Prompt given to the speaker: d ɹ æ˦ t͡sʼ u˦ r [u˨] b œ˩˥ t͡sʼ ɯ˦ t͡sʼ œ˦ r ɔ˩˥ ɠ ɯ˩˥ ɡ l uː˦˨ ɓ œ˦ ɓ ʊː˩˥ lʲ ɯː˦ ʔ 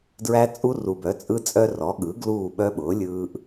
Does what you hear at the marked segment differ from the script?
no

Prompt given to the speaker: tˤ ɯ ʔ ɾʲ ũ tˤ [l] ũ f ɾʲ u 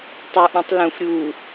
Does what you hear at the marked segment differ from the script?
no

